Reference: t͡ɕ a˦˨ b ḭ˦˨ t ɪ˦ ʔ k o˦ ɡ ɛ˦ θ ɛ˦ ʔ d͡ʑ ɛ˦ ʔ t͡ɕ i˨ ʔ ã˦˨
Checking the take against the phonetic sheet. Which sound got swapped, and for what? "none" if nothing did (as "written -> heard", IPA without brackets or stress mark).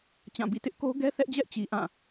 a˦˨ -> ã˦˨